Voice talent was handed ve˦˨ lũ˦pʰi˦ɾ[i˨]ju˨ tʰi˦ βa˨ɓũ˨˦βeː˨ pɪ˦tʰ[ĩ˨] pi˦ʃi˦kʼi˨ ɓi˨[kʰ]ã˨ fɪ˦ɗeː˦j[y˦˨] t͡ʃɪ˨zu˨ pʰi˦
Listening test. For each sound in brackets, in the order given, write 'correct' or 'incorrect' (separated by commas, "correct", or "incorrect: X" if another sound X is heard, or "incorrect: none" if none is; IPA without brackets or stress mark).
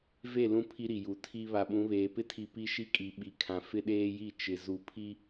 correct, incorrect: i˨, correct, incorrect: i˦˨